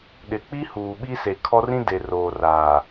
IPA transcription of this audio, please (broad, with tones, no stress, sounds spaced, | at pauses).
ɗ ɪ˨ k͡p i˦ h uː˨ ɓ i˦ s e˨ kʰ ɔ˦ r ĩ˦ d e˨ r oː˨ r aː˨